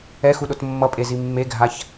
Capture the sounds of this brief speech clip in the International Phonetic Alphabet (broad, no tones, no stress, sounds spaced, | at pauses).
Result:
ɛ x u ɗ o t mː ʌ pʼ e z i mː e ɡʱ a ç